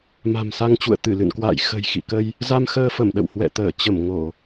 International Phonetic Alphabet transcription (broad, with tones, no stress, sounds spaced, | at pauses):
m a̤˨˩ m s a˧ ŋ t͡ɕ ṵ˧˨ ə̯ t̪ ɨ˧˩ l ɨ̰˧˨ n k w a̰ː˧˨ j x ə̤˨˩ j x ḭ˧˨ k ə˧ j | z a˧ m x əː˧ f ə˧˩ m ɗ ə̰˧˨ w h w ɛ̰˧˨ t̪ əː˧˩ t͡ɕ ə˧˩ m ŋ o˧˩˨